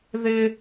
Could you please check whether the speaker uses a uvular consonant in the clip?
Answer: no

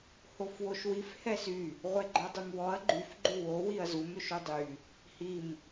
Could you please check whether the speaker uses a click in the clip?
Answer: yes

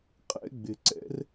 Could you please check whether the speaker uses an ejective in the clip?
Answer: yes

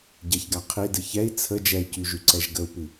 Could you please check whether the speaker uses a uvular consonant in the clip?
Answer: yes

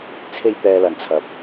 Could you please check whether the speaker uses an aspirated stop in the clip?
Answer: yes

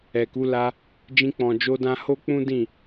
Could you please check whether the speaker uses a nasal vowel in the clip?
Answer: yes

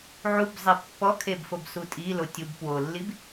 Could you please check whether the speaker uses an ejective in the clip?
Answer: yes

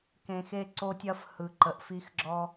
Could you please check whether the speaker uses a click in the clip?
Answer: yes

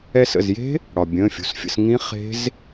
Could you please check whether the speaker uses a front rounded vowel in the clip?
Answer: no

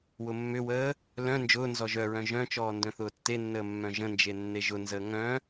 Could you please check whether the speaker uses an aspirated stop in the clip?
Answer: no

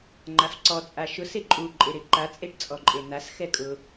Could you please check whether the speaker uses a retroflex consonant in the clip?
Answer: yes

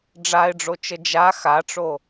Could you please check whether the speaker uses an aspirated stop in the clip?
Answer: no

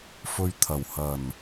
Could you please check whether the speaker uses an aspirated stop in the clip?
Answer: yes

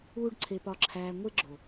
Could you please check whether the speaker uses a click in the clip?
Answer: yes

